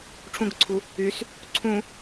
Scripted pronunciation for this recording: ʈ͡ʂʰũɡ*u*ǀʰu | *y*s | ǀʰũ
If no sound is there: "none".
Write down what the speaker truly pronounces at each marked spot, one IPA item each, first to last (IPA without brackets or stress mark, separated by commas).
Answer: ʊ, y